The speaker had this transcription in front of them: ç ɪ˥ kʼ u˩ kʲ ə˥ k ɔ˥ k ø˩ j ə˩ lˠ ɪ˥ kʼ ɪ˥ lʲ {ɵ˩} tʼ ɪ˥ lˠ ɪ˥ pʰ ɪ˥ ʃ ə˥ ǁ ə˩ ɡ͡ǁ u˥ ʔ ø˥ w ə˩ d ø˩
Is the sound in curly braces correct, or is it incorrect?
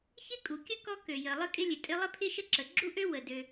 incorrect